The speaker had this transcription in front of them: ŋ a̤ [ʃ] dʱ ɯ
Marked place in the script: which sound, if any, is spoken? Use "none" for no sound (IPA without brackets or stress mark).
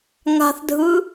θ